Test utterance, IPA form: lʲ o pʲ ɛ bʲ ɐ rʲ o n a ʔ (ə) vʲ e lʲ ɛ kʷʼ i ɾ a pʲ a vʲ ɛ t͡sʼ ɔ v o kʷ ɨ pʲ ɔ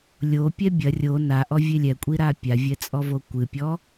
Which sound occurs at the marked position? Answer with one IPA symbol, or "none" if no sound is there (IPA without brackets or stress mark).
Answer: ɔ